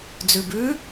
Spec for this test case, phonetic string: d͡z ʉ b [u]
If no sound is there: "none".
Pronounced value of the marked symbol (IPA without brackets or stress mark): ʉ